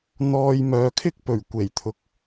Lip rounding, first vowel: rounded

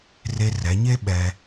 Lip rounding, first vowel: unrounded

